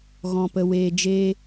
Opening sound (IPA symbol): ɣ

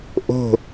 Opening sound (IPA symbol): ʔ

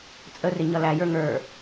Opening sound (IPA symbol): t͡sʼ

